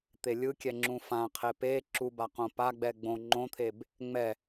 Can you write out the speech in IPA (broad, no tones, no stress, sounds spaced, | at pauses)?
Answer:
t̪ e lʲ ɯ kʲ ɛ ŋ͡ǁ ũ f ã qʰ e p e ǁ u b a q õ p a ɡ͡b ɛ ɡ͡b õ ŋ͡ǃ õ t̪ʰ e b | ŋ͡m ɛ